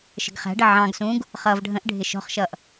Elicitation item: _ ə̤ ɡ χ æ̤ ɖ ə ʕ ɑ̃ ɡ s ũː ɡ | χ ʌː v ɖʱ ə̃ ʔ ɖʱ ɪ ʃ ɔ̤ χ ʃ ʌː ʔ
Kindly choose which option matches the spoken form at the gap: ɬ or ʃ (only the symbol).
ʃ